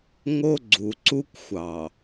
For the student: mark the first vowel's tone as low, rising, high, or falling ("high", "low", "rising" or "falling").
high